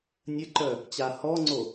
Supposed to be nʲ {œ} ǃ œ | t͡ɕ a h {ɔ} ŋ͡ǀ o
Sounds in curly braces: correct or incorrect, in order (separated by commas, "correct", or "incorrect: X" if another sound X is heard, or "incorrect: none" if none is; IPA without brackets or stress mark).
incorrect: ə, correct